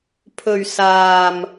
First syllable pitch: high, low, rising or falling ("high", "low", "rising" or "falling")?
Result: low